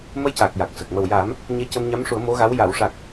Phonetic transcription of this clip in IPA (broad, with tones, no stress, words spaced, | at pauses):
mə˧jca˨˩k̚ ja˨˩k̚sə˨˩k̚ mə˨˩wja˨˩˦m | ɲe˧cə˧mɲa˧˥mʂu˨˩˦ə̯ mo˧˥ɣa˧˥w ja˨˩˨wʂa˨˩k̚